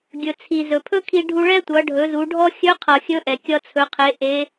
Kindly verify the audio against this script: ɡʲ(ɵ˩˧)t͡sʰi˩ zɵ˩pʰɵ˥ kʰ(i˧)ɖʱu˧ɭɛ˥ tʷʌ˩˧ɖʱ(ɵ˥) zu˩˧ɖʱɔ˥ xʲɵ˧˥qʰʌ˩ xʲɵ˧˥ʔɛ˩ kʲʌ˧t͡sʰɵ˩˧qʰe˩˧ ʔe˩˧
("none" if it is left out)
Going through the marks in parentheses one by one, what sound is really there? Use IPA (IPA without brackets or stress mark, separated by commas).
ɵ˩, i˧, ɵ˩˧